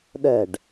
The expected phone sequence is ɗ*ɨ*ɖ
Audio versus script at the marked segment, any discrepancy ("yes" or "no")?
yes